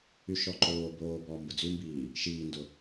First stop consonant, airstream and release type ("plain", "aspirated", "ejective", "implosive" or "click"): click